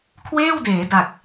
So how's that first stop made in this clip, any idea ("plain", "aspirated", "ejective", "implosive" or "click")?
aspirated